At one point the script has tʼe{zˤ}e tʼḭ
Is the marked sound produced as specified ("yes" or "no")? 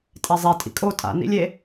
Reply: yes